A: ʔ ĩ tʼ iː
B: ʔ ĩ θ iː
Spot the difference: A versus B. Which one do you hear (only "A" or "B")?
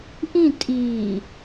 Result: A